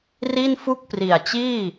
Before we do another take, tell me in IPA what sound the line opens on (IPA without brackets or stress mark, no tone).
r